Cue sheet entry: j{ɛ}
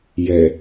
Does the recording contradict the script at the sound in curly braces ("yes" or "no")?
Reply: no